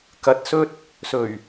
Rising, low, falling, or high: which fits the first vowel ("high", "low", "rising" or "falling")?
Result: rising